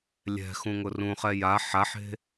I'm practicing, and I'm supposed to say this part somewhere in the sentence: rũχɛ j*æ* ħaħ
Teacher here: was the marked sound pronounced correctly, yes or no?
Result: no